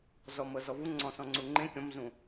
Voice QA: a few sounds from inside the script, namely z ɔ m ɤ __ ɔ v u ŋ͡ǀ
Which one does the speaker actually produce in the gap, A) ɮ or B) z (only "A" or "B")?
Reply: B